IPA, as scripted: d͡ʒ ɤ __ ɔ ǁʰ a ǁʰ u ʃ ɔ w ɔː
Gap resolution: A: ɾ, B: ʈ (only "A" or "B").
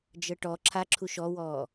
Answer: B